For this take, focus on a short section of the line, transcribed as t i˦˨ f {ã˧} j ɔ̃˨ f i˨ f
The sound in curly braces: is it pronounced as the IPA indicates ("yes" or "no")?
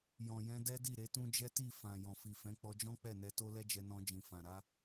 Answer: no